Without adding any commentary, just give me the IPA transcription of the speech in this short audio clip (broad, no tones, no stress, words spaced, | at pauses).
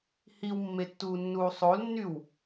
hiwmːetːuːnːuː sˤolnːyw